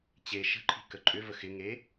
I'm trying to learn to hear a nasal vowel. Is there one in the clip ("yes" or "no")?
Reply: no